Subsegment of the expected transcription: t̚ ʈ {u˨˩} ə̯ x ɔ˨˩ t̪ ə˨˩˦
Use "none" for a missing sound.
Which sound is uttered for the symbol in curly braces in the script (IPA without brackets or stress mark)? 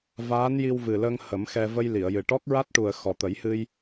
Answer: u˨˩